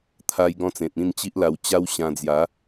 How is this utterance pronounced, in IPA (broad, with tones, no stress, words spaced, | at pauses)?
t̪ʰa˧jɡɔ̃˧t͡sẽ˨t̚ ĩ˥˧nt͡ɕi˦ʔla˧w t͡ɕa˦wɕã˧d͡zja˨˦